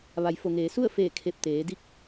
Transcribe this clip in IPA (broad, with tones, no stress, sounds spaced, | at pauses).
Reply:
ʋ a˩˧ j f o˩ ŋ eː˩˧ s u˥˨ ə̯ f eː˧˩ kʰ e˧˩ p̚ t̪ eː˩˧ d i˧˥ k̚